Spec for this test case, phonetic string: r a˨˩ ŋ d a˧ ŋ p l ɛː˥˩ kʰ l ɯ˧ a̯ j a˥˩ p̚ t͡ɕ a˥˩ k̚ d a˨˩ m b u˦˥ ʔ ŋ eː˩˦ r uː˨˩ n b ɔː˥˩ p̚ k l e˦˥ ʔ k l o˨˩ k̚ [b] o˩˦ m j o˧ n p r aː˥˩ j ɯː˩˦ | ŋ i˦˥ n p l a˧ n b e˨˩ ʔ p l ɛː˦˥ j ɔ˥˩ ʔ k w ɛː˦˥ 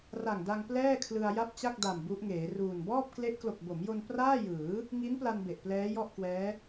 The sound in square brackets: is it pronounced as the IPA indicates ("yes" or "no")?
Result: yes